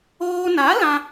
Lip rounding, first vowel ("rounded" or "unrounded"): rounded